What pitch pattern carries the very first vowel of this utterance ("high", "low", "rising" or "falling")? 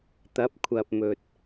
rising